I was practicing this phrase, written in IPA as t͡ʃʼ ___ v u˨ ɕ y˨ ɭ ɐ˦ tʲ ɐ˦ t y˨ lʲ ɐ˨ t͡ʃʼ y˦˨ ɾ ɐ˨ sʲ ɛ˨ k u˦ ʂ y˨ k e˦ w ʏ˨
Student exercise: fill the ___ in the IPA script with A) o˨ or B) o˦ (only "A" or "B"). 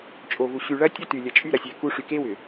A